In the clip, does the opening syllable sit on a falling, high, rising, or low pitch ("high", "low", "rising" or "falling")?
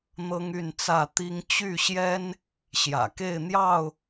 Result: high